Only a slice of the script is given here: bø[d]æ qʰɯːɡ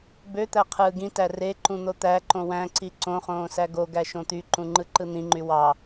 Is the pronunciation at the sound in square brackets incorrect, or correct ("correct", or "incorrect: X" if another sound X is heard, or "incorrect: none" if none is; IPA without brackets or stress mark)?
incorrect: t̪